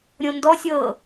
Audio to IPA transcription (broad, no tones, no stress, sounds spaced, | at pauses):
ɾʲ õ n d ɔ sʲ ɤ